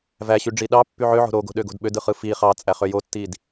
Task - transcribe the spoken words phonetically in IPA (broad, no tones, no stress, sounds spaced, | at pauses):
v æ ɕ y ɖ͡ʐ i ɗ ɑ pː y ʕ ø ʕ o̤ ɾ o ɡ o̤ ɗ ø ɡ o̤ d ɓ ø d ɯ χ ɯ f i χ ɑ t͡sʼ æ χ ø j o tː i d